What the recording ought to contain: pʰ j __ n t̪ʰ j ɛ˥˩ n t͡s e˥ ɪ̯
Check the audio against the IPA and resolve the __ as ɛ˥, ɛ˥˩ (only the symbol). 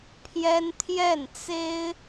ɛ˥